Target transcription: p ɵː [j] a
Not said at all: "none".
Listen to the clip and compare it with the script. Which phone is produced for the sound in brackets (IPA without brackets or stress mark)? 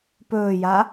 j